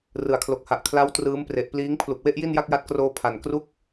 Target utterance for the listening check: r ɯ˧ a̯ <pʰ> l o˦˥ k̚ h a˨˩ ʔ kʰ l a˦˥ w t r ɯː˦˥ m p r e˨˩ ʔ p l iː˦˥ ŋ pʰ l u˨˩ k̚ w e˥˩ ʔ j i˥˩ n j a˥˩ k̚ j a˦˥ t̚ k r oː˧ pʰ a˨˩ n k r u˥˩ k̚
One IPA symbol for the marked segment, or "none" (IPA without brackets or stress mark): kʰ